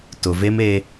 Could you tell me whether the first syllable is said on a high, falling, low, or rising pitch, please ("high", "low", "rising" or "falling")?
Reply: low